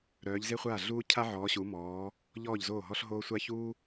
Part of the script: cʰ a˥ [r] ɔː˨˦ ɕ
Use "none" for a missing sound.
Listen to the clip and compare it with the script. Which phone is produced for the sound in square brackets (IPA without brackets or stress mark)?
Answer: ʕ